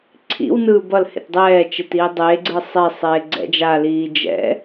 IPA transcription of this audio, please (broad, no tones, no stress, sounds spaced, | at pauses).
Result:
ǀʰ ḭ w n ɯː b ʌ l h ḛ t dˤ ɛː t͡ʃ e t iː dˤ eː ɡ͡ǀ ɯ sˤ e sˤ eː ɡ͡ǀ ɛ̰ d͡ʒ a l iː d͡ʒ ɛ̰